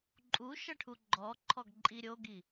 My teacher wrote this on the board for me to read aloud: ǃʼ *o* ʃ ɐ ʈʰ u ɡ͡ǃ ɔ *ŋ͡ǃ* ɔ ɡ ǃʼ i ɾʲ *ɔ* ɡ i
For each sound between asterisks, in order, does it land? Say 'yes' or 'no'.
no, no, no

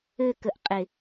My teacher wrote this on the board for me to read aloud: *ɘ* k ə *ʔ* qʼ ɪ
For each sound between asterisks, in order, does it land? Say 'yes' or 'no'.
yes, yes

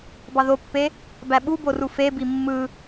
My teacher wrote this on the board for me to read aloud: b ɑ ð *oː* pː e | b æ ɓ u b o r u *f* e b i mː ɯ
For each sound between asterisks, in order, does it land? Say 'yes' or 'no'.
no, yes

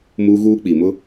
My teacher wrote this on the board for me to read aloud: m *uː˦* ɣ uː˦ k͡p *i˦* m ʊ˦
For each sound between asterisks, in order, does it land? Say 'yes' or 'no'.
yes, no

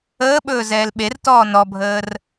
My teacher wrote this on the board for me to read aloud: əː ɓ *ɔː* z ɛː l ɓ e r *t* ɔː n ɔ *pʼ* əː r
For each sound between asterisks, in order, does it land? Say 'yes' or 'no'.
no, yes, no

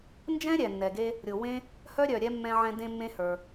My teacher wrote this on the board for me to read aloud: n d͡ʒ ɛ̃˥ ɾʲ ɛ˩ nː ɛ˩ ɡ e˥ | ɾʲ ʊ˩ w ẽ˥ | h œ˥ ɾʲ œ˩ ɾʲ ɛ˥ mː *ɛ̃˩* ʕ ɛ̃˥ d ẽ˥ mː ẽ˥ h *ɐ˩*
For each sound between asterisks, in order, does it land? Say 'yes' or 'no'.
no, no

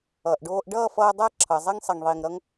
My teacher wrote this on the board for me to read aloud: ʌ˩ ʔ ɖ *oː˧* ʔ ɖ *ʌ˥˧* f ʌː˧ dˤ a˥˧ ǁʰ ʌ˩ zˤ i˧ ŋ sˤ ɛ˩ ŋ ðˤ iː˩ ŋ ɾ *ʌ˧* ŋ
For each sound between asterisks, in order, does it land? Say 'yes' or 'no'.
yes, no, yes

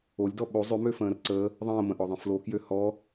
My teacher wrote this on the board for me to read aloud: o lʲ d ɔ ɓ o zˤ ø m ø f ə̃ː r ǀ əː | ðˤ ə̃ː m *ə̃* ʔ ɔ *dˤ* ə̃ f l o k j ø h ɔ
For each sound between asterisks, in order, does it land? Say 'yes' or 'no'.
yes, no

